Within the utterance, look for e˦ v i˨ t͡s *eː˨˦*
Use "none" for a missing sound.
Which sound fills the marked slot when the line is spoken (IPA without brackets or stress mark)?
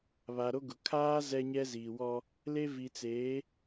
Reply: eː˨˦